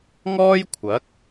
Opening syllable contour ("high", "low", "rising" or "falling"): high